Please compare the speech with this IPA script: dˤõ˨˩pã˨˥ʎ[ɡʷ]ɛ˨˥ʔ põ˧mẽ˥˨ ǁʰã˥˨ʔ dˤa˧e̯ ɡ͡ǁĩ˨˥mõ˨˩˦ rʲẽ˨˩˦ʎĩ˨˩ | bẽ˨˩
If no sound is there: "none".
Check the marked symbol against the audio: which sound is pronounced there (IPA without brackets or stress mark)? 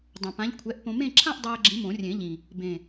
kʷʰ